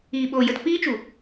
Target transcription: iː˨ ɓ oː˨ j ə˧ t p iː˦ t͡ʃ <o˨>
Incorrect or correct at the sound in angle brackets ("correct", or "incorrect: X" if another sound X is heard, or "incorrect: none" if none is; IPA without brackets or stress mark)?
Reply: incorrect: u˨